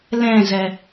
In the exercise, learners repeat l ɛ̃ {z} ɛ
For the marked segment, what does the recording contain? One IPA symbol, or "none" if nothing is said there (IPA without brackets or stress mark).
z